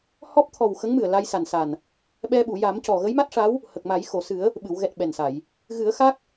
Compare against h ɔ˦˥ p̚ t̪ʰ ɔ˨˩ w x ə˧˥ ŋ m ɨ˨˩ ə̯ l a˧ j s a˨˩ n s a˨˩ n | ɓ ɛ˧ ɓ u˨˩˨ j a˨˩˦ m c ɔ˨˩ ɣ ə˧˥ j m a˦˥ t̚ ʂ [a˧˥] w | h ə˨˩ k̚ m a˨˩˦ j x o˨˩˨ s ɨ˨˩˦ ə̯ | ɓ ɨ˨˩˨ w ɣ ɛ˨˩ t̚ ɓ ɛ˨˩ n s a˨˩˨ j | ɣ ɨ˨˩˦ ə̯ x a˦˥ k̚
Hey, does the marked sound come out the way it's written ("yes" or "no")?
yes